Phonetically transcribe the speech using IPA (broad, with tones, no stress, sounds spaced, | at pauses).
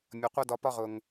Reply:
mʲ ʌ˨ qʷ ʌ˦ d ɒ˧ p ɒ˦ ʁ ʊ˨ ŋ